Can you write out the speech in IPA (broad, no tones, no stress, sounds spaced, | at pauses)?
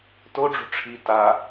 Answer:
t o ɖ͡ʐ ṳ ʈ͡ʂʰ i t a